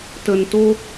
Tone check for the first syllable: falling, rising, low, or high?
low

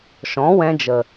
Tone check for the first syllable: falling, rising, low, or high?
rising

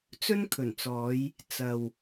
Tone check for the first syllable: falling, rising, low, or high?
high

